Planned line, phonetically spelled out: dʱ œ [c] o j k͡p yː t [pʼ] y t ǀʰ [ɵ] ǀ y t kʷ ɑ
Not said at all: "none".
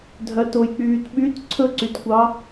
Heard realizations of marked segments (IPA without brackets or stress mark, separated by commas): t, ɓ, ɵ